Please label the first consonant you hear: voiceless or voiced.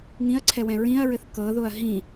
voiced